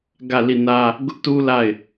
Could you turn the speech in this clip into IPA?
ɡä˦˨li˦˨nä˦ | ɡʊ˦ʔtu˦ la˦˨ɪ̯

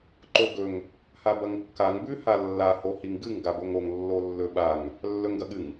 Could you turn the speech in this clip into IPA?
ǃoɡɵŋ | habɐŋkːaŋ bʉ halːa hohiŋɡɨŋ ɡaboŋoŋ lːolːɵɓaŋ | lːɵŋɡɐɠɨŋ

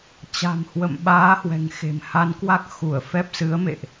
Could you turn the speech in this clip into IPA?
t͡ɕa̤˨˩mhwə̰˧˨m ɓaː˨˦hwɛ̤˨˩ŋxe̤˨˩m ha˨˦nkwa˦˥k̚ xu˧˩ə̯fɛ˦˥p̚ sɨ˨˦ə̯mḛ˧˨ʔ

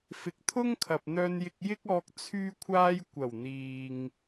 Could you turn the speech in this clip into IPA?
fɪ˨k̚t̪ʰʊ˥ŋkʰɐ˨p̚ n̪œː˧njɪ˧k̚jɪ˥k̚ɔː˧k̚ t͡sʰyː˥kʷʰaː˥j kʷɐ˨˩wn̪iː˨ŋ

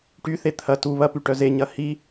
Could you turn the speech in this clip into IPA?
ʈyθe t̪ʰɐ tu βɐpyʈœ zeɲɐ hi

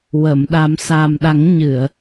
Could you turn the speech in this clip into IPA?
wə˨˩˨m ɗa˨˩˦msa˨˩m ɗa˨˩˦ŋɲɨ˨˩˨ə̯

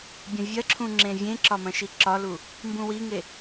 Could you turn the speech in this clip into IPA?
bʲɐ̃vʲɐǁʰũ ŋ͡ǁẽvʲẽǁɒ mɐ̃ʃiǁɒlu | mbũwiŋe

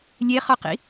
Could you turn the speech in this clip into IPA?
lʲeχɒqḭ

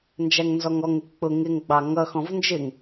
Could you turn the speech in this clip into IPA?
nd͡ʒæŋnzɔŋɔŋɪ k͡pʊ ŋɪŋ ɡ͡bɑŋʌxɔ̃v nd͡ʒɪŋ

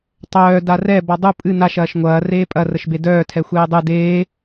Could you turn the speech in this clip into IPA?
tˤœː darɛ bɔdˤu pʼɨ naʃ ɐːʃŋʷɐː reːpʼɐ rəʃbedœː tʰɛxʷeːdˤɨ deː

